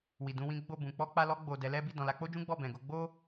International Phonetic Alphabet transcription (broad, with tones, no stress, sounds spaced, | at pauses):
w i˨ d ũ˧ w ĩ˦ ɡ͡b o˦˨ b ũ˨ k͡p ɔ˧ k͡p a˧ l ɔ˧ ɡ͡b o˨ d ɛ˨˦ l ɛ˦ b i˦˨ d ɔ̃˨ l a˧ k͡p o˦ d͡ʒ ũ˦ ɡ͡b ɔ˦˨ b ɛ̃˨ ɡ o˨˦ ɡ͡b o˦